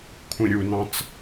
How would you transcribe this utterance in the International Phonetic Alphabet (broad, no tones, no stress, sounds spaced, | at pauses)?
kʷʰ ĩ ɾʲ u n ɑ̃ t͡s